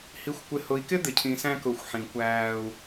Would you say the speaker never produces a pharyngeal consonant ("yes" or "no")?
no